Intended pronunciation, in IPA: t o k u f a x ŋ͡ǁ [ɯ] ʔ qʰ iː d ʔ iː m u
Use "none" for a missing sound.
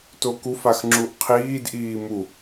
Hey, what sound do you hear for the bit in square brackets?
u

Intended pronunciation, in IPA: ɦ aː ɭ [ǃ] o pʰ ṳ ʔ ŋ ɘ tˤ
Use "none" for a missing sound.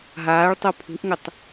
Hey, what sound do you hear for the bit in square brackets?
tˤ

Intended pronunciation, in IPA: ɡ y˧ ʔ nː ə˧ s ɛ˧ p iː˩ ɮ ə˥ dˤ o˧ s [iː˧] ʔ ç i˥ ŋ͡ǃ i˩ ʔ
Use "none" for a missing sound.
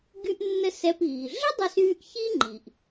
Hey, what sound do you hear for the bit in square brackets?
yː˧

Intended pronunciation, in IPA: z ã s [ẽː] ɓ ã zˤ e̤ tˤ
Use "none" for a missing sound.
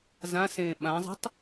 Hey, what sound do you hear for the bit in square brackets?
ẽː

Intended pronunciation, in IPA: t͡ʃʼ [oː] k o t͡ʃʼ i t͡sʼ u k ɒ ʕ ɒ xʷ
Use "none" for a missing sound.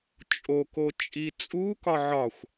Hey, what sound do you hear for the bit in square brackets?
o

